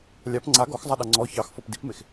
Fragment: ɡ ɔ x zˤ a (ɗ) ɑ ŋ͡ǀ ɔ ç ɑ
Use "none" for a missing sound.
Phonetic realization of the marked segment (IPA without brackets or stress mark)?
ɗ